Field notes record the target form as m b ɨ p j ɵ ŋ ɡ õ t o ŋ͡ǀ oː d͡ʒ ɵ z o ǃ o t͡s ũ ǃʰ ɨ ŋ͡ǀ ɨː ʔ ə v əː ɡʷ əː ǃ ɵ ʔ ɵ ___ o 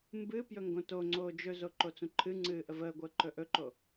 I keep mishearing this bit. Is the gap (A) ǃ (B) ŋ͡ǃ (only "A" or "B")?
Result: A